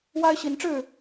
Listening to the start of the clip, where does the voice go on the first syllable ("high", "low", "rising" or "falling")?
high